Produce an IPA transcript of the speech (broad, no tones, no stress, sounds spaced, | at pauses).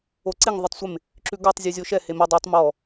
o ǀ e ŋ ðˤ o tˤ sʷ e m | ǁ ʉ ɡ ɔ tˤ zʲ ʉ zʲ o ʃ ɛ h e m ɛ dˤ o tˤ m ɔ